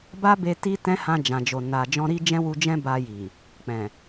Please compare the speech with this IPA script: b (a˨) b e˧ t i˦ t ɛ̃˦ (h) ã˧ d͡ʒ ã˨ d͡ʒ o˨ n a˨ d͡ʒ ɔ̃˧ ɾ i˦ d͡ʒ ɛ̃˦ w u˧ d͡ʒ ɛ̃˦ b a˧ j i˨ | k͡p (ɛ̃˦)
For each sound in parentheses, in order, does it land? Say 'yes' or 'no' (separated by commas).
no, yes, no